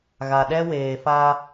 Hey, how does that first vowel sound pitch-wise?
low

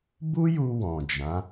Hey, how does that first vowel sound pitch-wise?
high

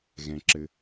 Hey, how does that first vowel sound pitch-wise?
low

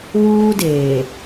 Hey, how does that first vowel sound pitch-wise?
high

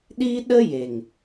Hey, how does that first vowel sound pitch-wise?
high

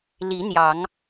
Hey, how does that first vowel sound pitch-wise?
rising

